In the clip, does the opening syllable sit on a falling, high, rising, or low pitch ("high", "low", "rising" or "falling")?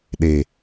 low